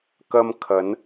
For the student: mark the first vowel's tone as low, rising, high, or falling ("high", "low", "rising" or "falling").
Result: high